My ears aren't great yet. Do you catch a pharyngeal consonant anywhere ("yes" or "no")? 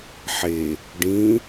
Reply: yes